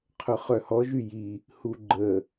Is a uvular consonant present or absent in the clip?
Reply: present